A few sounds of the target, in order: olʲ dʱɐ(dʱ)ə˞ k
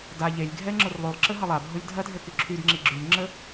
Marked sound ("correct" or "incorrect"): correct